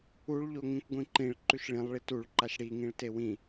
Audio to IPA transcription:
uɭ ʎoŋĩkʷɡʷĩǃĩɭ ǃʉʃɭĩlˠ ɭituɭǃaʃ ɽiŋĩɭ tewĩ

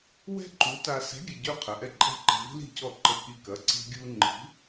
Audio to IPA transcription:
wɛ̤˥ǃu˨˥ta˧ sɛ̤˨˥ɡʲə˩˧˩ɟø˧ qʰə˩˧˩ʔɛ˥˩ǃʼɛ̤˥˩ǃɛ̤˧ vi̤˥li̤˥˩cɔ˥˩ ǃə˧ki˧kɐ˩˧˩ ǀi̤˥ɡʲu˥ ŋ͡ǃi̤˨˥

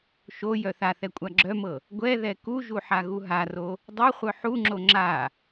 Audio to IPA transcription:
ʃo jœθaθɛ kʷʼaɡ͡ǁœmɤ | ɡʷɛ ðɛkuʒu ħaɣuɦaro | dˤɤχʷœ ħuŋ͡ǁo ŋ͡ǁa

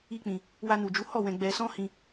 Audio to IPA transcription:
i˦k͡pĩ˧ | wa˧nu˨d͡ʒu˨˦hɔ˦˨ wɛ̃˧ɡ͡bɛ˧ sɔ̃˦hĩ˧

